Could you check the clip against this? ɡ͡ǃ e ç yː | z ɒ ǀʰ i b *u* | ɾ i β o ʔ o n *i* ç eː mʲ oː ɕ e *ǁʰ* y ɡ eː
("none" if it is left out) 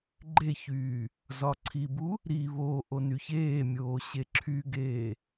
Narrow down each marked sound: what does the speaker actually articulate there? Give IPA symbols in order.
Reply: u, y, ǁʰ

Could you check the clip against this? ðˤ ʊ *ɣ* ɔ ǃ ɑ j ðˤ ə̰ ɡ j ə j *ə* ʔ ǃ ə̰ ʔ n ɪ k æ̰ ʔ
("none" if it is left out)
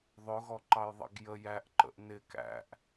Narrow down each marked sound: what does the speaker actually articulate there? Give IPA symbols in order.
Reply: ɣ, æ

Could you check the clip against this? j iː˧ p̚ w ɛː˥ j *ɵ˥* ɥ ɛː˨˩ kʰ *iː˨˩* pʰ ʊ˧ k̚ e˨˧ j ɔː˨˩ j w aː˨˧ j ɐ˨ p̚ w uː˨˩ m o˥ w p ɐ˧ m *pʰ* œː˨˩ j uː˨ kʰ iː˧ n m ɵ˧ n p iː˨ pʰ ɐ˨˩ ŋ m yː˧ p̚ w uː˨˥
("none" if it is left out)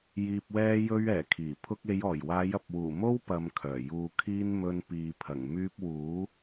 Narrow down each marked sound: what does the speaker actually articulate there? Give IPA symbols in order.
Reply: ɵ˧, iː˨˩, kʰ

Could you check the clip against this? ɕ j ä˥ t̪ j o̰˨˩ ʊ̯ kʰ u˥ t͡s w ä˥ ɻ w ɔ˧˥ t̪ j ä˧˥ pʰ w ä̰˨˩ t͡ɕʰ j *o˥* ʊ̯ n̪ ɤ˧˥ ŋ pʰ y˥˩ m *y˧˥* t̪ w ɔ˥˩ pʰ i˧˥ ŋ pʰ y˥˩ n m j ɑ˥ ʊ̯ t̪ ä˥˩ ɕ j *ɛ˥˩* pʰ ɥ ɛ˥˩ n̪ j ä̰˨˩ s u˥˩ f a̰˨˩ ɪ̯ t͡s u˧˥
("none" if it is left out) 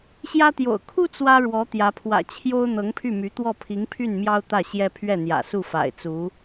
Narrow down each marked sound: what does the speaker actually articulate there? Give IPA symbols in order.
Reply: o˥, y˧˥, ɛ˥

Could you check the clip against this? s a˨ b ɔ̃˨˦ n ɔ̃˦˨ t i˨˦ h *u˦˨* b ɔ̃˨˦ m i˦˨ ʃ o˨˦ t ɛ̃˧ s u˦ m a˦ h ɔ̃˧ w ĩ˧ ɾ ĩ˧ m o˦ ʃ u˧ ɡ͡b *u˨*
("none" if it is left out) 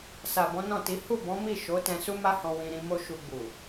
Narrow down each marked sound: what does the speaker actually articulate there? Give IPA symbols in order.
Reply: u˦˨, u˨

